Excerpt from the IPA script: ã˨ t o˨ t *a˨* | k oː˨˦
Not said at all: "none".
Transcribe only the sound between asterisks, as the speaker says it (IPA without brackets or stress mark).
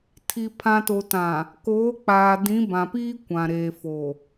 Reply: ã˨